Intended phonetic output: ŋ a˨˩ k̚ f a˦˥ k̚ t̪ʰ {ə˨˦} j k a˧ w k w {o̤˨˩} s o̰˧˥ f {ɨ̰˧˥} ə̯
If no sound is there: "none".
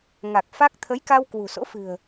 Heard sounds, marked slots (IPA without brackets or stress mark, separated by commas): ə˨˦, ṳ˨˩, ɨ̤˨˩